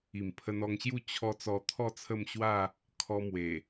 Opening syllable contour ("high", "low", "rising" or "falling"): low